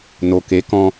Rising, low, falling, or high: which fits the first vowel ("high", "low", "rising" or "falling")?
low